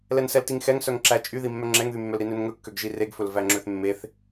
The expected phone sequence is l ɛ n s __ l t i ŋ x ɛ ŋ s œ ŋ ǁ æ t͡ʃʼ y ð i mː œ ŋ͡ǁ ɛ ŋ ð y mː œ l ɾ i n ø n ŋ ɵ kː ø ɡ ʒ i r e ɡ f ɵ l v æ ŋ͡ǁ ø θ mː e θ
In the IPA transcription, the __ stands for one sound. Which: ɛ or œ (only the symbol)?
ɛ